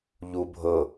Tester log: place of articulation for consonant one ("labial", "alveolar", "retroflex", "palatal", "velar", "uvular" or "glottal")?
palatal